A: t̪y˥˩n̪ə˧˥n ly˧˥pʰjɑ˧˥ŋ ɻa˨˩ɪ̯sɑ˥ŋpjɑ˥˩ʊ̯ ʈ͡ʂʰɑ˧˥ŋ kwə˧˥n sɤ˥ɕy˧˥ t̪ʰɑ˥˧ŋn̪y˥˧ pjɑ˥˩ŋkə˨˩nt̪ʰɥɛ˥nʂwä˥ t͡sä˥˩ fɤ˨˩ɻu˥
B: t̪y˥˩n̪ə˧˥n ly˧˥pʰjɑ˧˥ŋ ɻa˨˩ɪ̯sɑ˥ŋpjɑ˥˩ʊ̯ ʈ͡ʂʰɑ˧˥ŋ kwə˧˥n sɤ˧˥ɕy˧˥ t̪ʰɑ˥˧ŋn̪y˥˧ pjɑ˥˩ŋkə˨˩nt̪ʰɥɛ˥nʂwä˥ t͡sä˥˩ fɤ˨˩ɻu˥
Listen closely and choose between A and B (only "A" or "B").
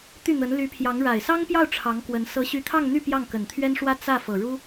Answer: B